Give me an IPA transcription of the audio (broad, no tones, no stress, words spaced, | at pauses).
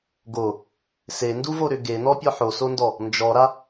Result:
ɡo | senduvoɾʏ ɡenɔpʲɔ ħosondɔ | nd͡ʒɔɾa